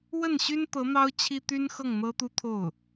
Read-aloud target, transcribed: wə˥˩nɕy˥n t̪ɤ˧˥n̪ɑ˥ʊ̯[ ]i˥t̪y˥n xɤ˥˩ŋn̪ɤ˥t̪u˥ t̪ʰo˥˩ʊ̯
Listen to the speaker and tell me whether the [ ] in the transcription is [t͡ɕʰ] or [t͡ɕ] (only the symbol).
t͡ɕʰ